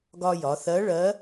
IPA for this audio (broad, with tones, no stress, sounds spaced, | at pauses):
ɡ ɒ˧ j ɒ˩˧ θ ɜ˧˥ ɭ ɜ˧˥